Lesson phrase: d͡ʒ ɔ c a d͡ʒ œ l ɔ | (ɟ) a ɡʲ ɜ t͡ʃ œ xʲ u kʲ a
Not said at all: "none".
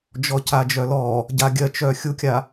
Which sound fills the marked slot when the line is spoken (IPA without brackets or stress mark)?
ɟ